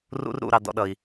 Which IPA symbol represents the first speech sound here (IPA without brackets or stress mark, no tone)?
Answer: r